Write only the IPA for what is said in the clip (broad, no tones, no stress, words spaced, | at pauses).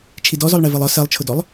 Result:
t͡ʃʰidɔzɔlˠ ɳɛvɜlˠɒ sɜlˠt͡ʃʰʊdɔlˠ